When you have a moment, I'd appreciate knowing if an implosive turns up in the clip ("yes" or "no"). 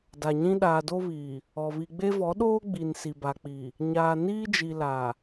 yes